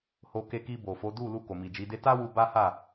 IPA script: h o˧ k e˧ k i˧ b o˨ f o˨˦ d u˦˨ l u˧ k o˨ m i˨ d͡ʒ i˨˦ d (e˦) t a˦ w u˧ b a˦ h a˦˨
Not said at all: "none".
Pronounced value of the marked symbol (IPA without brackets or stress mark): e˦